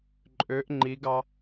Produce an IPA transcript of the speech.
ǃʼ ø ʔ ŋ͡ǃ i ɡ ɑ

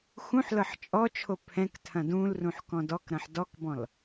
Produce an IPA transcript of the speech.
x ũ ħ l ɤ ħ t͡ʃʼ ɔ t͡ʃʰ o pʰ ɛ̃ k tʰ ɐ̃ d ũ l r ũ ħ k ɔ̃ d ɔ k ɾ ɐ̃ ħ d ɔ k b ɔ̃ l

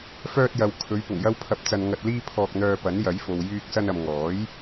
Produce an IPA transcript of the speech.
f œː˧ t̚ j ɐ˨ w kʰ ɵ˨˧ ɥ p ʊ˨˩ ŋ j ɐ˧ w pʰ ɐ˨˥ p̚ t͡s ɐ˨ n ŋ ɐ˨ t̚ l iː˧ pʰ ɔː˧ k̚ n̪ œː˧ p ɐ˨˥ n j ɐ˨˥ j f o˨ w j yː˧ k̚ s ɐ˧ n ɐ˨ m ŋ ɔː˨˥ j

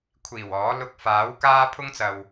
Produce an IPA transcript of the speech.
kʷʰ iː˨˩ w ɔː˨˥ l ʊ˧ k̚ f aː˨˥ w k aː˥ pʰ ʊ˥ ŋ t͡s ɐ˨ w

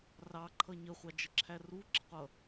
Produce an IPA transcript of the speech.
r ɑ ǃʰ ʌ ɲ ə χʷ ɑ d͡ʒ ə ǁʰ æ r u ǁ ɪ qʷ ʌ

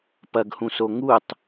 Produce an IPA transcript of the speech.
p ɐ ɡ h ũ s o ŋ u tˤ

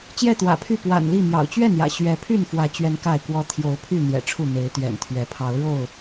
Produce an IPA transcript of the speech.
t͡ɕ j ɛ˥˨ t̪ w ä̰˨˩ pʰ y˥˨ p w a̰˨˩ n l i˥˨ m j ɑ̰˨˩ ʊ̯ t͡ɕ ɥ ɛ˥˨ n j ä̰˨˩ ɕ ɥ ɛ˨˦ pʰ y˥˨ n f w ä˨˦ t͡ɕ ɥ ɛ˦ n k a˥˨ ɪ̯ k w ɔ˦ t̪ʰ j o˨˦ ʊ̯ pʰ y˥˨ n̪ j ɛ̰˨˩ ʈ͡ʂʰ u˥˨ n̪ e˨˦ ɪ̯ t̪ ɥ ɛ̰˨˩ n t̪ʰ ɥ ɛ˨˦ pʰ ɑ˨˦ ʊ̯ ɻ o˥˨ ʊ̯

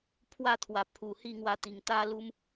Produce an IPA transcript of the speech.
pʰ w a˥˧ t̪ʰ w a˨˩ pʰ u˨˩ h i˥˧ ŋ w a˧ t̪ i˨˩ ŋ t̪ a˦ l u˦ m

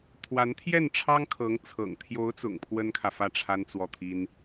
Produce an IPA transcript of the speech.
t̪ʰ w a˧˥ n t̪ʰ j ɛ˥˩ n ʈ͡ʂʰ ɑ˥ ŋ kʰ ɤ˧˥ ŋ t͡sʰ ɤ̰˨˩ ŋ t̪ʰ j o˧˥ ʊ̯ t͡s ʊ̰˨˩ ŋ pʰ w ə˥ n kʰ ä˨ f ä˥˩ ʈ͡ʂʰ a˥ n t͡s w ɔ˥˩ t̪ʰ i˥ n

